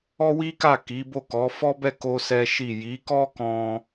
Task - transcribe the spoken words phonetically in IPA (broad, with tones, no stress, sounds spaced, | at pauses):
ɔ˦ w i˦ k a˦˨ k i˨˦ b o˦˨ k ɔ˨˦ f ɔ˦ b ɛ˦˨ k o˧ s ɛ˦ ʃ i˦˨ j i˨˦ k ɔ˦ k ɔ̃˧